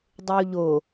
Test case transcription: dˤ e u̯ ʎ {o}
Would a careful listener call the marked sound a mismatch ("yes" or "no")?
no